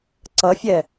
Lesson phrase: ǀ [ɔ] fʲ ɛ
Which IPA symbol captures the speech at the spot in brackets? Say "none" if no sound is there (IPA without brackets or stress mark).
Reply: ʌ